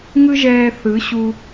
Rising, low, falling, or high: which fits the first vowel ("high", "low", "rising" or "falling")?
high